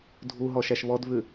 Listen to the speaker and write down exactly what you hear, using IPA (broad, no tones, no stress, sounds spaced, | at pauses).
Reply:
dʱ u ɦ ɔ ʃ æ ʃ β ɔ d v ʉ